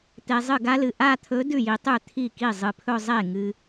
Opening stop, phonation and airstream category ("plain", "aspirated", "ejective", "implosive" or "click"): plain